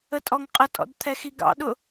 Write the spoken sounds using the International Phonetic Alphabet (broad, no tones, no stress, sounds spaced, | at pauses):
ə tʼ ɔ ŋ qʼ ə tʼ ɔ̰ d t̪ʰ ɛ x i ɡ ɑ̰ ɗ ʊ